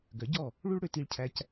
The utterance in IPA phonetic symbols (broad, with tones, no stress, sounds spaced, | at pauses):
ɡ œ˩˥ ɟ ɔ˥˩ | ɭ u˥ ɭ ɽ ø˧ t i˧ ɭ cʰ æ˧ c